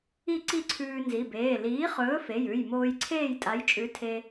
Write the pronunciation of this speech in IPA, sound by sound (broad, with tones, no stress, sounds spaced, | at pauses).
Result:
i˥˨ ǀ i˥˨ ǀʰ ʉː˧ n z i˩˧˩ b eː˩˧˩ l iː˨˥ χ ɵː˨˥ f e˩˧˩ j ʉ˩˧˩ j m oː˧ j ǀʰ eː˥˨ j tʼ a˨˥ j t͡ʃʼ ʉ˨˥ tʰ e˧